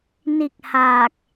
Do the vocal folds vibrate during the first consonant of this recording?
yes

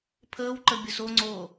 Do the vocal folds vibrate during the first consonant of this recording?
no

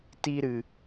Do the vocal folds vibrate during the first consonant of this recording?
no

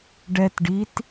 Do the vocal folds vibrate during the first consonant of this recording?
yes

